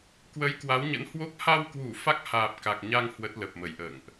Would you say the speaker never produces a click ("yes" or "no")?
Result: yes